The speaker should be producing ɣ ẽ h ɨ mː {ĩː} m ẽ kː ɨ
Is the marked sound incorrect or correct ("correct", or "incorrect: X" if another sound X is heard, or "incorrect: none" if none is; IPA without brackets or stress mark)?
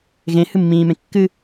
correct